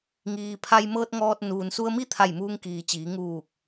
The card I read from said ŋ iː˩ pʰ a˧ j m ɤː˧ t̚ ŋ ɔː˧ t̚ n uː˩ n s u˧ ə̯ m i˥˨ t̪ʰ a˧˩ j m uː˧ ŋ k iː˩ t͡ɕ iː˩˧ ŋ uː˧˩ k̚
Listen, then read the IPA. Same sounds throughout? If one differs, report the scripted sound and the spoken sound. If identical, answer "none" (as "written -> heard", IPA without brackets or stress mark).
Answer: none